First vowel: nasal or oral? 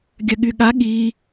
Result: oral